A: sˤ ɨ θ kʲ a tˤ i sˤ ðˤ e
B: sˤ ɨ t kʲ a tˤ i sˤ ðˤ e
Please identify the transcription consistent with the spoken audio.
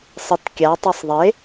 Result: B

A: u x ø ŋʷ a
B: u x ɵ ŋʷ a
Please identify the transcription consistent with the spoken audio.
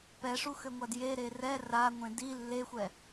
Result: A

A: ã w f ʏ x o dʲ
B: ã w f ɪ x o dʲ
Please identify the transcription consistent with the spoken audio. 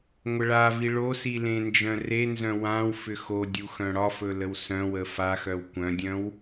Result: A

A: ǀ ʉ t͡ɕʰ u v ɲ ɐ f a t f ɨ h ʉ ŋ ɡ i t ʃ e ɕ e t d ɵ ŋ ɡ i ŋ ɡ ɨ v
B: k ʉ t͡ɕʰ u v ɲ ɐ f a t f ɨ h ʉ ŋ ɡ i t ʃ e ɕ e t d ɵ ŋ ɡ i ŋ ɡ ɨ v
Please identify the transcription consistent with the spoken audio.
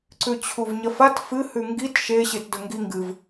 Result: A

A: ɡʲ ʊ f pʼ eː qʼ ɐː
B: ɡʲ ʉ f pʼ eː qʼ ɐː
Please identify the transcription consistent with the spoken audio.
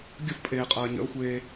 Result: A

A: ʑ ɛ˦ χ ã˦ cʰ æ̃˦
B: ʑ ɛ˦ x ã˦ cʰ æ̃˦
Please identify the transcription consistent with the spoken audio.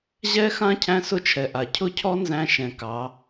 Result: B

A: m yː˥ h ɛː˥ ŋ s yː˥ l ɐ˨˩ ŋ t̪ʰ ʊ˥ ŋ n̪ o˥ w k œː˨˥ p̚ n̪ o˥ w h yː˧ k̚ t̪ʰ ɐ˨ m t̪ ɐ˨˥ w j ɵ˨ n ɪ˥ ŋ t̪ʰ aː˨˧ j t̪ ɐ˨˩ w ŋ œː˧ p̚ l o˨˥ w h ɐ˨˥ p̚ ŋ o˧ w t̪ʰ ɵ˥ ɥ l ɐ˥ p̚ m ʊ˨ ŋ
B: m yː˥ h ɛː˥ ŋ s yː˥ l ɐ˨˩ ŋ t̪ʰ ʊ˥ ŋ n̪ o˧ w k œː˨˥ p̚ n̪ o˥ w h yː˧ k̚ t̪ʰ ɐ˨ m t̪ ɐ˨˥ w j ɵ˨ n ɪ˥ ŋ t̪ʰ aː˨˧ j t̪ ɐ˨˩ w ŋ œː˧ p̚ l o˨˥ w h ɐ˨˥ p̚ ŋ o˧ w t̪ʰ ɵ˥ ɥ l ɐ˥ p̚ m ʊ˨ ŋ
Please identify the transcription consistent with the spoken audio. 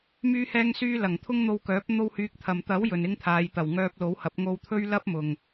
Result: B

